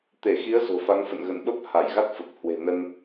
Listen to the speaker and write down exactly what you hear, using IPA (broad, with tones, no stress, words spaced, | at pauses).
t̪e˧˩xi˨˦ə̯ zo̤˨˩fa˨˦ŋfə̰˧˨n ɣə̰˧˨nɓə˦˥p̚ ha˧˩jɣa˦˥t̚fə˨˩p̚hwe̤˨˩ nə˧n